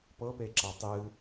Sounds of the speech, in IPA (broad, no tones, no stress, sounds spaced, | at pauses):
p ɤ p e ǁ a tˤ ɨ